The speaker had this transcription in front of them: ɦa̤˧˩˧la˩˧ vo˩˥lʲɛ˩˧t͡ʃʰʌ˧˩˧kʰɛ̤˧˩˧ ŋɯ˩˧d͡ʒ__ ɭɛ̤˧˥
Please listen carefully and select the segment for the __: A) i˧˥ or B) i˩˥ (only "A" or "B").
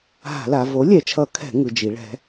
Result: B